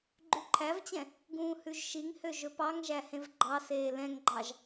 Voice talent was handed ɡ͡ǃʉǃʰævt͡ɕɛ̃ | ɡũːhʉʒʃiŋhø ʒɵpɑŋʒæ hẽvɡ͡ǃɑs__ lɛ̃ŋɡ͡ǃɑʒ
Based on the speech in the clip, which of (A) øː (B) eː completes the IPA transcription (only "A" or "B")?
B